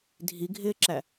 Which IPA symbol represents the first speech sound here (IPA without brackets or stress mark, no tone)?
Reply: dʱ